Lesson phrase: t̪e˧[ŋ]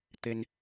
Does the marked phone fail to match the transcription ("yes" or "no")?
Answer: yes